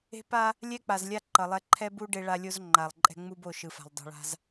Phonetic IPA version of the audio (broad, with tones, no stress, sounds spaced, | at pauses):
e̤˦ p a˦ | lʲ ɛ˦ k͡p a˨ z lʲ a˦ ǃ ʌ˨ lˠ ɛ˦ ǃʰ ɛ˦ b u˦ ɖ e˦ ɭ a˦ lʲ o˦ z ŋ͡ǃ a˨ lˠ ǃʼ ɛ̤˦ ŋ͡m u˦ b o˦˨ ʃ ɯ˨ f a̤˨ lˠ dˤ ṳ˨ ɭ a̤˦ z